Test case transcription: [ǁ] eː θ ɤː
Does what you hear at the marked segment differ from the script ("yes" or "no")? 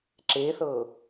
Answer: no